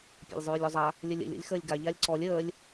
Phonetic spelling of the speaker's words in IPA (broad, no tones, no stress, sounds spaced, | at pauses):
pʲ a̰ lʲ zˤ ʉː lʲ ɔ zˤ a | lʲ ə lʲ ə̰ lʲ o̰ lʲ x əː lʲ ɡ a ʎ a lʲ ǀ ɔ lʲ əː lʲ